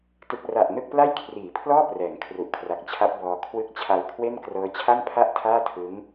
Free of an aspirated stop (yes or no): no